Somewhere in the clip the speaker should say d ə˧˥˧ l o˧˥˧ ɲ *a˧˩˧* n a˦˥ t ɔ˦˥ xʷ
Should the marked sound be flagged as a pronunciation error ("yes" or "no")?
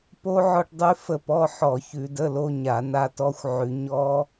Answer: no